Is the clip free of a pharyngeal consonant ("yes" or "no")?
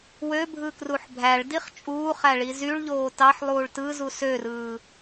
no